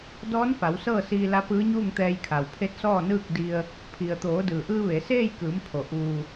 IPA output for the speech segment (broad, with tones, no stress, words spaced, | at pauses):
dɔː˧˥nfa˩˧w sɤː˥˨siː˧la˧˥pɯː˧˥ ɲuː˥˨ŋt̪ɛː˧jkʰa˩w pʰe˧˥t̚sɔː˥˨ nɯː˥˨k̚di˧ə̯ | pʰi˩ə̯ t̪oː˩˧dɯː˩ʔɯː˧ ʋe˩˧ seː˥˨jkɯː˩˧mpʰo˩ ʔuː˩